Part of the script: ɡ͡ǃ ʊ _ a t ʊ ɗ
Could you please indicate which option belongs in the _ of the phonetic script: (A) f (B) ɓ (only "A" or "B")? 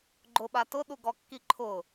B